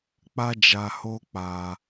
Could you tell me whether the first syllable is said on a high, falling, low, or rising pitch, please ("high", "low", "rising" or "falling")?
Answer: high